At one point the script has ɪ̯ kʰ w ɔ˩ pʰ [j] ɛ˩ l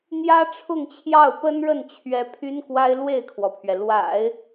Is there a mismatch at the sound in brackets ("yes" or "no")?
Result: yes